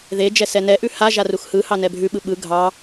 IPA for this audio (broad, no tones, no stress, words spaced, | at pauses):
ðe d͡ʒɛsɛnɛʔʉ ha ʒaruxhɯhɑ nɛbʱʉɓɯ ɓɯ ɡʱɑ